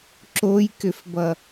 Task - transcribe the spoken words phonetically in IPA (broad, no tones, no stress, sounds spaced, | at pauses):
ǁ o j k ʏ f b ʌ